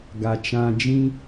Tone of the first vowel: low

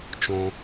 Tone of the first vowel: low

